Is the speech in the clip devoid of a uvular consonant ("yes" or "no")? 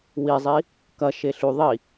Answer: yes